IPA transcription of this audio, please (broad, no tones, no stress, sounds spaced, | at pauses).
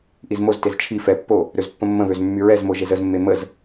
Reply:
ʔ i z m o z t e z t͡ʃʰ i f ɛ pː o | ɾ ø z pː ə̃ mː ə̃ β ø z mː y ɹ ɛ z m o ʒ e z ə z mː e m ə z